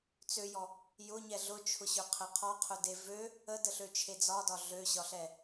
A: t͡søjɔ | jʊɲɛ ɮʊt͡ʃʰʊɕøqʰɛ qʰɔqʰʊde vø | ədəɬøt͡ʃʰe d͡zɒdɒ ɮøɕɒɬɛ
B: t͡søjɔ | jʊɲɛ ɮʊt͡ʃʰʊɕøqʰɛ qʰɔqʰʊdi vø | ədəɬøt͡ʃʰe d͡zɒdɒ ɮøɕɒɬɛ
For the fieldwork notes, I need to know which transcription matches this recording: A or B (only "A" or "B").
A